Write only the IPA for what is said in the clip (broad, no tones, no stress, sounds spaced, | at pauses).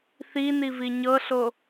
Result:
θ i n i v i ɲ ɤ ɬ o